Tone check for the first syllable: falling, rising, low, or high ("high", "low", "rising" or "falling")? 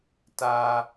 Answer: low